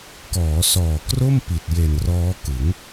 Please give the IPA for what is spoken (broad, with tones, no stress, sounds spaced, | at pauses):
k ɔː˩˦ s ɔː˨˩ k r o˥˩ m p i˨˩ t̚ j e˨˩ n r ɔː˦˥ k ɯ˩˦ ŋ